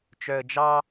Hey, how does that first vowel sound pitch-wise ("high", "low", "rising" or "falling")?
low